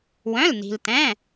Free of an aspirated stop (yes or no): yes